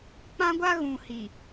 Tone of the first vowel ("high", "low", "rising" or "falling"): high